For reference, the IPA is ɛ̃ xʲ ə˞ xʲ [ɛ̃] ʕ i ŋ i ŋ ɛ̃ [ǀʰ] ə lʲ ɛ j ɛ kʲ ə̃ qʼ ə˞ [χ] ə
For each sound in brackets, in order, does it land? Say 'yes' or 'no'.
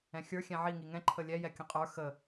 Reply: yes, no, no

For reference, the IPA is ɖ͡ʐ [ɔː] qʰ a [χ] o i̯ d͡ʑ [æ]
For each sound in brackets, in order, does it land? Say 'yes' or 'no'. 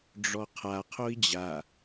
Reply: no, no, no

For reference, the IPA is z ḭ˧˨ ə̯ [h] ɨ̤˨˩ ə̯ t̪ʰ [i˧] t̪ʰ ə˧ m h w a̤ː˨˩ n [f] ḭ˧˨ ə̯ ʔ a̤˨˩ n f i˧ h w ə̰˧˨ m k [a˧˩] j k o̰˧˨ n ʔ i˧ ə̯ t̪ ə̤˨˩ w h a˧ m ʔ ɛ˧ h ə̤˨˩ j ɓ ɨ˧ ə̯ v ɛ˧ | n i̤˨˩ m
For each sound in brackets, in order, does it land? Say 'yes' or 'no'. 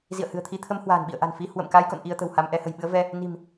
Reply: yes, yes, no, no

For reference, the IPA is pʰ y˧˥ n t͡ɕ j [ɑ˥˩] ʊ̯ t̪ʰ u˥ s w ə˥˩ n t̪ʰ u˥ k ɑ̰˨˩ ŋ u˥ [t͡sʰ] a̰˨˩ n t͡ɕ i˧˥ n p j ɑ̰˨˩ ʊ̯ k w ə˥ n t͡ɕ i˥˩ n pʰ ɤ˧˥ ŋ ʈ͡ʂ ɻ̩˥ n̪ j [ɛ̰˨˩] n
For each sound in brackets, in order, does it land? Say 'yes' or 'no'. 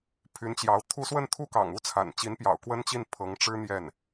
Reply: no, yes, no

